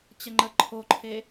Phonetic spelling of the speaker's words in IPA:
t͡ɕ ə ŋ͡ǃ ə ǃʰ o ǃʰ e

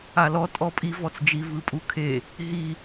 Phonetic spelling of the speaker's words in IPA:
a l ɔ tʼ ɔ pʼ i v ɔ t͡s d͡ʒ i v ɯ pʼ u kʰ e | ɦ i

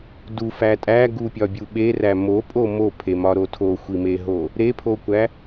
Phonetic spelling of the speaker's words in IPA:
d u f æ tʼ æ ɡ u pʲ ɒ bʲ u ɓ e r æ m o pʼ o m o pʰ e m ɒ ɾ o tʰ o xʷ i m e ɦ o | ɾ e pʰ o kʷ æ

